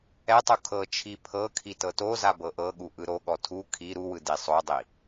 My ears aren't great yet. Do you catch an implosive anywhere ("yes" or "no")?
yes